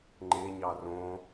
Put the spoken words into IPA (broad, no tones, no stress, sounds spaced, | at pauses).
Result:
ŋ͡ǃ e ɲ ɑ r õ